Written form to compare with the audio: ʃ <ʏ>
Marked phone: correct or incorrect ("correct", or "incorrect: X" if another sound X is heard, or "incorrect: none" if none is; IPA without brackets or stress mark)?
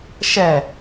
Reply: incorrect: ɛ